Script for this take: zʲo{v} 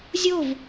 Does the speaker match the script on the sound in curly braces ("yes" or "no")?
yes